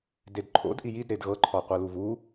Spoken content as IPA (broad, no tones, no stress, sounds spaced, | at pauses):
d e d ǃʰ o̰ d ʔ i j i d ɾ e d ɣ ɤ ǃʰ ɔ qʷ ɤ l u v u